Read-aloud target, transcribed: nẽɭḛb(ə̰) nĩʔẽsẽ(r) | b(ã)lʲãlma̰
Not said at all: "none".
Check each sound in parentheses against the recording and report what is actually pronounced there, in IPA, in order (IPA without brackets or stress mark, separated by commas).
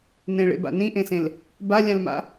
a̰, l, a